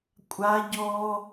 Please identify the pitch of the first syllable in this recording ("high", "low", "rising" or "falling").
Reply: high